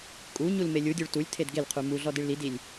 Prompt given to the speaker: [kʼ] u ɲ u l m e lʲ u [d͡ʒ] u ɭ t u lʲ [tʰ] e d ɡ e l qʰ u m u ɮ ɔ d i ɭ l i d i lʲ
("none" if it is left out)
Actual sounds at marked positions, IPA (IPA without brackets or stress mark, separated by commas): kʼ, dʲ, tʰ